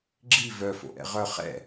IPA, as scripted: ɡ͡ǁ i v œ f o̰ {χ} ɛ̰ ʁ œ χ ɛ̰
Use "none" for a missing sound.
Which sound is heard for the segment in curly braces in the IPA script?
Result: ʔ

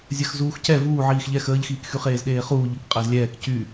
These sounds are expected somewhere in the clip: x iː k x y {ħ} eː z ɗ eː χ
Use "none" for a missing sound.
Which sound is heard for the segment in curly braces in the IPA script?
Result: χ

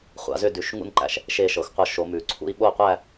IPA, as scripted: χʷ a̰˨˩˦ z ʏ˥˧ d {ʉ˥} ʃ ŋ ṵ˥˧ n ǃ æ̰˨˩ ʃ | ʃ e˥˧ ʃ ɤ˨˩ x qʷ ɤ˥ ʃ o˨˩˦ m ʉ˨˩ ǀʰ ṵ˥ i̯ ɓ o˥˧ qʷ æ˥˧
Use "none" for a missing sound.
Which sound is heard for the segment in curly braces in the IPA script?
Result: ʉ˨˦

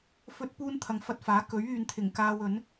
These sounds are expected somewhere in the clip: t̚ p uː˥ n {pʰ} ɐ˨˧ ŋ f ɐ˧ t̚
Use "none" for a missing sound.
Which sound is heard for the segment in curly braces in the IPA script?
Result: t̪ʰ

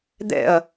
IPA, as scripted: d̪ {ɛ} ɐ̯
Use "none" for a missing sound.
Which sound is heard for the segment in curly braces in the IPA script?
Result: ɛ̰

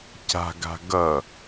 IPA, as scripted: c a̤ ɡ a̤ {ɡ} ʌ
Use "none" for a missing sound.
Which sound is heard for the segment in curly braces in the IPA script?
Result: ɡ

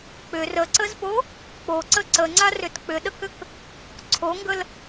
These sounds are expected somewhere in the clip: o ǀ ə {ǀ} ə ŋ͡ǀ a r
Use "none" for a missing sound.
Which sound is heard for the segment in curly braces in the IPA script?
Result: ǀ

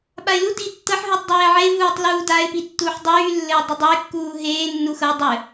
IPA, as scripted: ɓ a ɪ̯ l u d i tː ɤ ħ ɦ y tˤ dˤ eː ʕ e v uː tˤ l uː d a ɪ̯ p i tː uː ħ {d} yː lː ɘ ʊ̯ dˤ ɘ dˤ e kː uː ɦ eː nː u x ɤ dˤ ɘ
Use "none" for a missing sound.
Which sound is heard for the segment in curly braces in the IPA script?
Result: dˤ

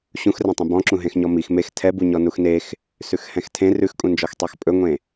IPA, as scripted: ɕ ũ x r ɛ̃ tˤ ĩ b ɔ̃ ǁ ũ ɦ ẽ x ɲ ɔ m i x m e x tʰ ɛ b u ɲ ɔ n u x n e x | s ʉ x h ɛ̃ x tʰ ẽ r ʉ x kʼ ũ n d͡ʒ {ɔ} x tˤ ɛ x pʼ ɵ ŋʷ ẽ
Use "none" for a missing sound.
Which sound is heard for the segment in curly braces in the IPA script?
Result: ɔ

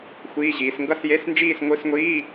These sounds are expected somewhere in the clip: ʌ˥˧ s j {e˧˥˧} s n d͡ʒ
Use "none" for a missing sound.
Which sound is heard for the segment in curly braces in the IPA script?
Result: e˧˥˧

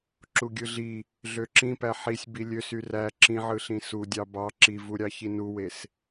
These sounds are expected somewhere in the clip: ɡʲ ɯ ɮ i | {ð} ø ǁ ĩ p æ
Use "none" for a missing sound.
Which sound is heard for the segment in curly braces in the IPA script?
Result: ɮ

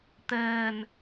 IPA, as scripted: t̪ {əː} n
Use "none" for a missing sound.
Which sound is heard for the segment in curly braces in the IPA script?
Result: əː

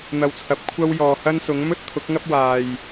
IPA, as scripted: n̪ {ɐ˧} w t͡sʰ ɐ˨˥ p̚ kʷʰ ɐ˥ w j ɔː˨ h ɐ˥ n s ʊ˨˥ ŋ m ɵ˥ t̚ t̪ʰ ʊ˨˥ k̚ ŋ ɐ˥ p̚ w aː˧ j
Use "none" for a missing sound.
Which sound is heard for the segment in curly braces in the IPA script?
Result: ɐ˧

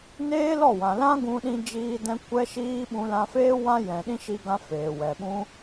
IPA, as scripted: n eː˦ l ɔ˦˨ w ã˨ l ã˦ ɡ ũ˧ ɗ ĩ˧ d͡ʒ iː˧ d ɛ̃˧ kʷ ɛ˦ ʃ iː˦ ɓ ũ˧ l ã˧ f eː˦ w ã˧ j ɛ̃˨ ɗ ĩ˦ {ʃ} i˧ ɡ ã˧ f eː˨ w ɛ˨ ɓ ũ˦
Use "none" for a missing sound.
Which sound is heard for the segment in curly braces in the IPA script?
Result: ʃ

